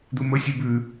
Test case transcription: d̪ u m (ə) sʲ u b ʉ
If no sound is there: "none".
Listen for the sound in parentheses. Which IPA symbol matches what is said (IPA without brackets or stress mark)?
ə